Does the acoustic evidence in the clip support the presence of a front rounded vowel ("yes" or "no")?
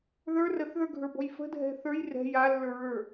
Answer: no